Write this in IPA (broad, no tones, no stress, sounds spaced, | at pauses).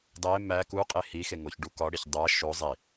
dˤ e m æ k u qʼ e h i x e ŋ o ç ɖ u k ɒ ɽ i ç dˤ æ ʃ o zˤ i